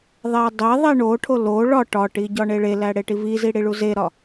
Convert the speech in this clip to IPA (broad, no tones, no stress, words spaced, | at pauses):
ðˤedˤeðˤi ɳoʈʰo lo ɭɒ ʈɒʈi ɟɒɳeɭelæ ɽeʈivizi ɽiɭuzeɾɒ